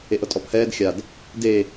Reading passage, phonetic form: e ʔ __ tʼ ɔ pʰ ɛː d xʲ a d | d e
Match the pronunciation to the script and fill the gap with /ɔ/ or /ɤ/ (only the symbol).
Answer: ɤ